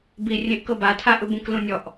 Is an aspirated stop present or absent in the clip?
present